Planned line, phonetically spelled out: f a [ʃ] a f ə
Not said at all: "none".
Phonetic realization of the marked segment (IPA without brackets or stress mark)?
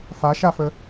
ʃ